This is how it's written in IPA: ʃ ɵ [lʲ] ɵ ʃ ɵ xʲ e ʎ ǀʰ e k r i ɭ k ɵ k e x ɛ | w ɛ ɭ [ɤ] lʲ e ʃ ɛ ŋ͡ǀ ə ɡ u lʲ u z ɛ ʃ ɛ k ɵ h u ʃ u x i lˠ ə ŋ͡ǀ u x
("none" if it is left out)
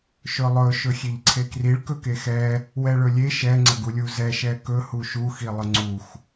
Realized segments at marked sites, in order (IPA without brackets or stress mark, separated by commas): lˠ, ɵ